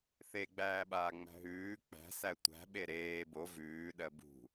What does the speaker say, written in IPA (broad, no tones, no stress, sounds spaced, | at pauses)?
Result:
θ e ɡ͡b æː ɓ aː ŋ͡m æ̤ ɦ ʉː k͡p æ̤ s æ tʷ æ̤ ɓ e ɾ eː b o v ʉː ɗ ɜ b ṳ